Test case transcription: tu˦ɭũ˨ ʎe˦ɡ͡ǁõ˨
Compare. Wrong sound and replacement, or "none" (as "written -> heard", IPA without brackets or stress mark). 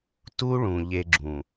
õ˨ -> ũ˨